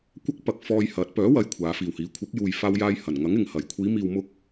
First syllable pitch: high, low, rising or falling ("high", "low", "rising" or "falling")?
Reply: high